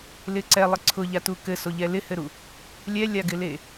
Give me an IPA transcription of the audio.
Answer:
l ɪ ǀ ɛ lˠ ɪ ǀʰ ʊ ʎ a t u k ɘ s o ʎ ɛ l ɪ h ɘ ɾ u | lʲ ɛ lʲ a ɡ ɪ l e

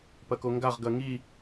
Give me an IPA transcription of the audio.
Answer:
p ɐ k o ŋ ɡ a ʁ ɡ ɐ ŋ i

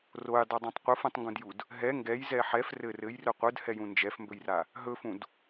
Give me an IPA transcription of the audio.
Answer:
r o j dˤ ɘ dˤ ũ tˤ qʷ ɯ f ũ tˤ ŋ ɡ ũ d j u d | ɦ ɛ ŋ ɡ ɛ j z ɛ ħ ɛ f r ɘ r ɘ j r ɵ qʷ ɯ d h ɛ j ũ n d͡ʒ ɛ f m b ɵ j r a | ɦ ɵ f ũ d

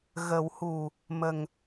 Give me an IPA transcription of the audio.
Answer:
ɣ ə˨˩˦ w h u˨˩ | m ə˨˩ ŋ

